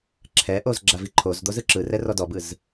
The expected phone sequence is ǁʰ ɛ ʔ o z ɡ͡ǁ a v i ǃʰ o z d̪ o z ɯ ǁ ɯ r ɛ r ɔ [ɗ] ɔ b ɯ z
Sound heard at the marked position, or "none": d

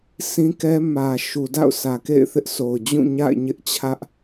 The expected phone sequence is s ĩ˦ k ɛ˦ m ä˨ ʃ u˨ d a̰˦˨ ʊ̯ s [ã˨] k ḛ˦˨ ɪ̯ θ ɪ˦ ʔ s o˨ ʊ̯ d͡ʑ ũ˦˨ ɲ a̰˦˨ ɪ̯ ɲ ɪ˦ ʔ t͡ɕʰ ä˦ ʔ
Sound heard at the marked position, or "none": ä˨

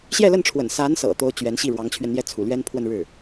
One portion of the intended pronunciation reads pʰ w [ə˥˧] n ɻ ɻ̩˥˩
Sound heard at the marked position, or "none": ə˥˧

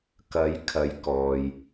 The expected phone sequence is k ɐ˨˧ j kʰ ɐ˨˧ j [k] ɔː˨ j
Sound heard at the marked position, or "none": k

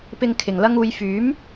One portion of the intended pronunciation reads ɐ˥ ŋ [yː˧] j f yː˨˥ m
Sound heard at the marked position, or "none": uː˧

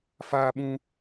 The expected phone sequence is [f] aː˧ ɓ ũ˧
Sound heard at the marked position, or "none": f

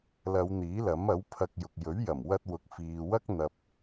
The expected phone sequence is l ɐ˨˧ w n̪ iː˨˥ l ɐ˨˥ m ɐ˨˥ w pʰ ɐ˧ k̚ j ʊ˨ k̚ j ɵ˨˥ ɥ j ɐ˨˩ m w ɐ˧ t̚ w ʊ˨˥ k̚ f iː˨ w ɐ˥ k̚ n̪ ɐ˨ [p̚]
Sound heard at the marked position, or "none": p̚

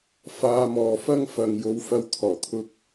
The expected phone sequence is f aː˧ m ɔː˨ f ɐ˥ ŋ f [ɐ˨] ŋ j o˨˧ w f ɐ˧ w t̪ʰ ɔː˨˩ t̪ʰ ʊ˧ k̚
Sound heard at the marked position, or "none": ɐ˨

